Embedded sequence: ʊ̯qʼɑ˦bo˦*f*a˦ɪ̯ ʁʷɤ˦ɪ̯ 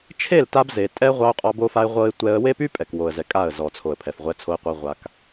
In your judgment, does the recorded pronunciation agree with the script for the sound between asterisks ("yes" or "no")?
yes